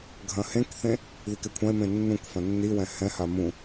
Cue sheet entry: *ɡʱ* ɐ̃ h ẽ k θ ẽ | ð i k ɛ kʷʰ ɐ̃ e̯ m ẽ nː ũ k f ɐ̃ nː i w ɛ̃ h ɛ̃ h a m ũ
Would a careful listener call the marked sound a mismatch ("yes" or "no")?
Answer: no